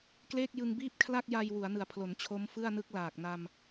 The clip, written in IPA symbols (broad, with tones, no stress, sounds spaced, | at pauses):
k l eː˥˩ k̚ j ɯ˧ ŋ b iː˥˩ p̚ kʰ l a˥˩ k̚ j a˧ j w u˩˦ a̯ n ɯ˨˩ a̯ pʰ l o˩˦ n t͡ɕʰ o˦˥ m f ɯ˥˩ a̯ n ɯ˦˥ k̚ l aː˨˩ k̚ n a˧ m